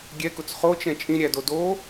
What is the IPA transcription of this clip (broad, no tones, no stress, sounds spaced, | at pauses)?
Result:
ɡʲ ɛ k ʊ t͡s χ o t͡ʃ ɛ̃ t͡ʃʼ ĩ ɾʲ æ d o d o